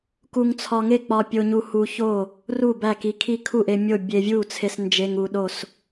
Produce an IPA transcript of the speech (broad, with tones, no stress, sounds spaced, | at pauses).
k u˧ ŋ t͡sʰ ɒ˧ ŋ e˥˨ k͡p ɒ˧ pʲ o˧ ɲ u˧ h u˧ ç o˥˨ | r u˥˨ b æ˥˨ k i˧ kʰ i˥˨ kʰ u˥˨ ʔ e˧ mʲ o˥˨ bʲ e˧ vʲ u˥˨ t͡sʰ e˧ s n d͡ʒ e˧ ŋ u˧ ɗ o˥˨ s